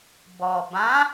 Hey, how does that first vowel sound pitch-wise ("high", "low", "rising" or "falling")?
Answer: low